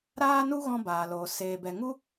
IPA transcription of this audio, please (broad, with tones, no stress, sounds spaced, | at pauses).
ɾ aː˦ n u˦ ɣ ɔ̃˦ b aː˨ l oː˨ s eː˨ b ɛ˨ ŋ u˦